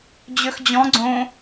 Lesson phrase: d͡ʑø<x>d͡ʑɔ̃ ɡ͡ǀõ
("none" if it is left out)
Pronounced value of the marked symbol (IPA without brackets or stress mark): x